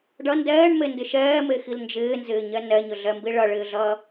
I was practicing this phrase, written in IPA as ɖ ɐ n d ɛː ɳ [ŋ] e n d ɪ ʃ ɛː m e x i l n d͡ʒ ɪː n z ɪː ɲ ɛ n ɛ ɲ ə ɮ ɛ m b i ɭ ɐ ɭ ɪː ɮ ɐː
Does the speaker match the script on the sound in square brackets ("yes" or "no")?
no